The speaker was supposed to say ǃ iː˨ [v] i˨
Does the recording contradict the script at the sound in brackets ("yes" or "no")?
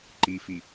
yes